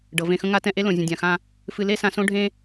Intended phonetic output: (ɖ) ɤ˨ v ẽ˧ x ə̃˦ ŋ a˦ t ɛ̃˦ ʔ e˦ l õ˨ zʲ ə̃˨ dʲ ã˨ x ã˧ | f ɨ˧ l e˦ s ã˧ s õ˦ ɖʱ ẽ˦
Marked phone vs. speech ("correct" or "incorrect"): correct